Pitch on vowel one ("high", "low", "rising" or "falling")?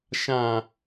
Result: low